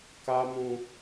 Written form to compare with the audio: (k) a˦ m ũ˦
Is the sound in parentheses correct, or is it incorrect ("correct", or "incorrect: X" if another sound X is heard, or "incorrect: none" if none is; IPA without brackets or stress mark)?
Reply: correct